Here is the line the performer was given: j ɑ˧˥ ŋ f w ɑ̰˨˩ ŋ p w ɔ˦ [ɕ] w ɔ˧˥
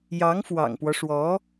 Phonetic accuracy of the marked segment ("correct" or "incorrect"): incorrect